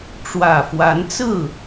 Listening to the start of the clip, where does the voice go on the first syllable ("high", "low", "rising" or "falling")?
low